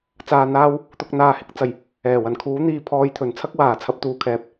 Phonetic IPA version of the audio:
t͡s aː˨ n̪ aː˧ w | t̪ ʊ˨ k̚ n̪ aː˨ h ɪ˨˥ k̚ t͡s ɐ˨˩ j | ɛː˨˩ w ɐ˨˩ n kʰ uː˨˥ n̪ iː˨ pʰ ɔː˨ j t̪ʰ ɵ˨˩ n t͡sʰ ɐ˥ k̚ w aː˨˩ t͡sʰ ɐ˨˥ p̚ t̪ uː˨˩ kʰ ɛː˨ p̚

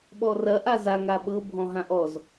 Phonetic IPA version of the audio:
ɓ ɔ r ɐ ʔ a z a ŋ a ɓ ɤ bʱ ɔ̃ ɦ ã ʔ ɔ z

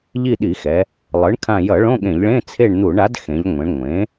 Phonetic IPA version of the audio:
ʎ i˦˨ ɗ i˧˩˧ x ɛ˩˧ | lˠ ɯ˩˥ ɳ kʰ ã˦˨ j ʌ˧˩˧ ɭ õ˧˥˧ ɠ ẽ˧˩˧ ʎ ɭ ẽ˧˥˧ t͡sʰ e˦˨ ɳ n̪ u˧˩˧ ɳ a˩˥ d x ẽ˩˧ ʎ ŋʷ ẽ˩˧ ɳ ŋʷ ẽ˩˥

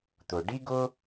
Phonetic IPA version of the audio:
t̪ ʊ˩ ɖ i˥ ɡ ʊ˥

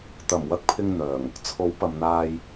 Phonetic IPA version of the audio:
t̪ ɐ˨˩ m w ɐ˧ k̚ pʰ ɪ˧ ŋ n̪ œː˨˩ ŋ | t͡sʰ o˨˥ w p ɐ˨ m n̪ aː˧ j

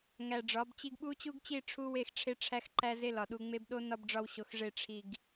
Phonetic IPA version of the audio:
ŋ æ˨ ɖ͡ʐ ɒ˨˦ b t͡ɕ i˦ ɡ ɓ u˦ t͡ɕ u˦ ɡ t͡ɕ i˦˨ ʈ͡ʂʰ u˦ w e˦˨ x ʈ͡ʂʰ e˦ ʈ͡ʂʰ æ˦ x ǃ æ˦ z e˦ l ɒ˨ ɗ u˨ ŋ͡m e˦ b ɗ o˦ n ɒ˦ b ɖ͡ʐ ɒ˦ w ɕ o˨ x ʐ e˦˨ ʈ͡ʂʰ i˨ ɡ

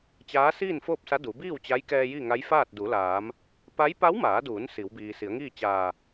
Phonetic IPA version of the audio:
t͡ɕ aː˧˥ s iː˥˨ n f oː˥˨ p̚ s a˧˥ d u˩˧ b iː˥˨ w t͡ɕ a˧˥ j k ɛː˧ j i˥˨ ŋ a˧˥ j f aː˥˨ t̚ d u˩˧ l aː˩˧ m | p a˧˥ j p a˧˥ w m aː˩˧ d uː˩˧ n s i˩˧ w b iː˩ s i˩˧ ə̯ ŋ iː˥˨ t͡ɕ aː˧˩

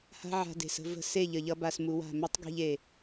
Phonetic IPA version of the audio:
h a̤˦ ʕ a̤˧ d e̤˨ s ə̤˦ v ə̤˦˨ s e˦˨ ʎ ə˨ ʎ ʌ˧ b a˧ s m u˧ w a̤˦˨ m e˦ tˤ ɡ e̤˧ ʎ e˨

